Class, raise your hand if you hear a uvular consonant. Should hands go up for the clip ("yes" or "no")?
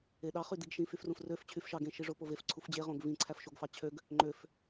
yes